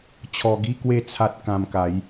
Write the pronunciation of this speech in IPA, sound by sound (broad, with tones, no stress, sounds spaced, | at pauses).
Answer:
t͡ɕʰ ɔ˧ ɡ i˥˧ k w e˥˧ t͡sʰ a˦ t̚ k ã˧ m k a˨˦ j